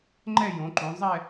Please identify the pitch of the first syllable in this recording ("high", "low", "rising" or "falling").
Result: falling